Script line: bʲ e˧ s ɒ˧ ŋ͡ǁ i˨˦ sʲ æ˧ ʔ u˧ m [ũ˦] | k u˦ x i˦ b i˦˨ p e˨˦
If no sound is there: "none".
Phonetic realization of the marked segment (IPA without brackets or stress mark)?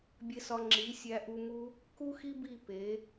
u˦